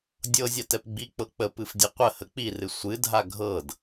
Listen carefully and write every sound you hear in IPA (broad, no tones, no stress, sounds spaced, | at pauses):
dʲ ɤ zʲ a t ɛ p ɡ͡b i k͡p ɤ k͡p ə p ɨ f dʲ ɛ qʷ ə h ə k͡p i r ɨ sʷ ɨ dʱ a ɡʱ ɤ d